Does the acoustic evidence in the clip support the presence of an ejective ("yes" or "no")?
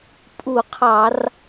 yes